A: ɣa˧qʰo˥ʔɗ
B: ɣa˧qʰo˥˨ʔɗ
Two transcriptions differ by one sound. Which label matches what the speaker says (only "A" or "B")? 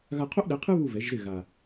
A